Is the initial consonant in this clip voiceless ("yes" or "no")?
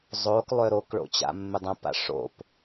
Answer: no